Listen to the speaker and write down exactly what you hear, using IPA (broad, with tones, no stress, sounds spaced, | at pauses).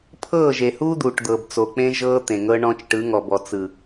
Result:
pʰ ɤː˦˨ ʒ e˨ h uː˦ d̪ uː˨ ʈ d̪ ɤ˨ b t͡s o˨ k͡p ẽ˦ ʒ ɤː˦ t̪ ẽ˨ ŋ ɤ˦ ɳ ɔ̃˦ t͡ʃ ʈ ɯ˨˦ ŋ ɔ˨ b ɔ˨ t͡s ɯ˨